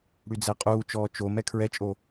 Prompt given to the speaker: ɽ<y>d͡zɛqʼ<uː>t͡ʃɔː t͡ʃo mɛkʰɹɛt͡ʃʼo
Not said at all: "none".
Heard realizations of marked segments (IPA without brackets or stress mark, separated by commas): y, uː